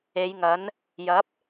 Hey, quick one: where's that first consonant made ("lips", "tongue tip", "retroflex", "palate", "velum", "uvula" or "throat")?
palate